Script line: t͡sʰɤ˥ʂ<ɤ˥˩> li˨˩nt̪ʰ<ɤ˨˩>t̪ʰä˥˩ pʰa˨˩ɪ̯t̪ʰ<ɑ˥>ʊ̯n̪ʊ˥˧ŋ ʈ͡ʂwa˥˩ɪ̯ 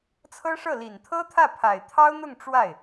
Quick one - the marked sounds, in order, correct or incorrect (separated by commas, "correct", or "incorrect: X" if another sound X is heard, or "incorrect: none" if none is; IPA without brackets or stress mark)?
correct, incorrect: ɤ˥, correct